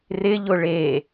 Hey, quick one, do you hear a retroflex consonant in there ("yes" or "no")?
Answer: yes